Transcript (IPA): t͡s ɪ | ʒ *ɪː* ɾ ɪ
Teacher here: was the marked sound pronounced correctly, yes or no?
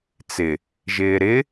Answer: yes